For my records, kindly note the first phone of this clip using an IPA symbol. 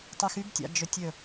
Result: tˤ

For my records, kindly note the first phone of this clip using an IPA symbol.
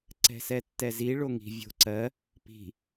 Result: ǀ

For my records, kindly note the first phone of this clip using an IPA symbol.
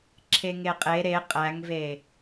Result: ǁʰ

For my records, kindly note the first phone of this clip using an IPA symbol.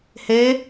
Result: h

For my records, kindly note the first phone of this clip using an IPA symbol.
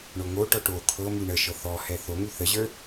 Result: ɳ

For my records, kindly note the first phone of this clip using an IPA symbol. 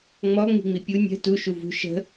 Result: ŋ͡m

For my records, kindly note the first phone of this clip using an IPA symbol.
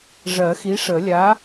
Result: ʐ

